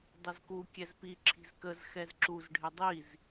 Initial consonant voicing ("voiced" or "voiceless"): voiced